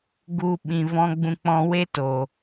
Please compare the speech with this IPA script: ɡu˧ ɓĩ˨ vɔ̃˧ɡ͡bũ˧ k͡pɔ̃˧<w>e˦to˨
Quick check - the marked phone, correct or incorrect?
correct